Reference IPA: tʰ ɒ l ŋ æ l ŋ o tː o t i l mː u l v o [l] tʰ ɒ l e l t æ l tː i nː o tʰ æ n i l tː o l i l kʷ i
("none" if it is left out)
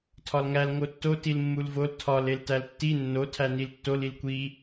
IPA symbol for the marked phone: l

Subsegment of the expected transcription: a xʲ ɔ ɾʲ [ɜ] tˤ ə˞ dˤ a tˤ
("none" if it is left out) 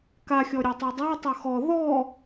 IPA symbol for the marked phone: ə˞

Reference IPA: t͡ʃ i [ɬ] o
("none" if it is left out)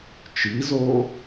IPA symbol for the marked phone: z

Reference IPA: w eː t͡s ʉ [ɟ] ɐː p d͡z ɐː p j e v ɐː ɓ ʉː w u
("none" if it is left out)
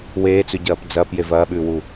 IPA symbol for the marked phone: ɟ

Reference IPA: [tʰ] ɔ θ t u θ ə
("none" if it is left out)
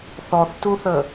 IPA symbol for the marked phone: θ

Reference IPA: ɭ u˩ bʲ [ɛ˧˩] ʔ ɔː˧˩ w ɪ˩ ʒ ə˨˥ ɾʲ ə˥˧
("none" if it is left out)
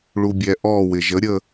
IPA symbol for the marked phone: ɛ˩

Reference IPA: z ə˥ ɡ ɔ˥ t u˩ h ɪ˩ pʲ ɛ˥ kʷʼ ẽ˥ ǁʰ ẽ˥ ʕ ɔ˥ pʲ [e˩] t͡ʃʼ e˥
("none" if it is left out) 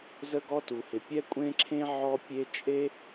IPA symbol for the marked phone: e˥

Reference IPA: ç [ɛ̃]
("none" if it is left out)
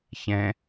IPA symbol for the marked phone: ɛ̃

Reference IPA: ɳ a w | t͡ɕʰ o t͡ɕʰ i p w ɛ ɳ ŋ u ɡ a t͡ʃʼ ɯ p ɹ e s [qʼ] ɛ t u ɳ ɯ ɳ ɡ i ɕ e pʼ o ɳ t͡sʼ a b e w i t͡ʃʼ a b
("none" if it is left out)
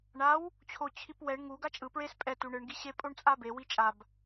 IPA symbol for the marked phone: pʼ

